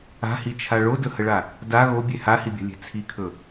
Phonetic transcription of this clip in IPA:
a̤hit͡ʃʰa ɭodɵhəɭa | da ɣobʲe hahibʲa̤lʲe̤ t͡sʰikʰɵ

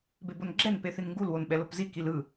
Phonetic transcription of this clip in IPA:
bebonɡ͡ǁɛn peθinŋɡul wonɓɛlopzi kilɯ

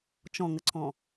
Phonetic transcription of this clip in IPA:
t͡ʃɔ̃ŋəǀʰɔ̃

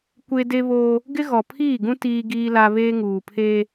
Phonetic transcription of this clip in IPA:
kʷe˦de˦βoː˦ | ɡɪ˦ɣɔ˨pʰiː˦˨ɡũ˦ tiː˦ ɡiː˦la˦ βeː˦ŋuː˨pʰeː˦

